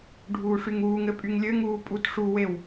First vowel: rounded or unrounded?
rounded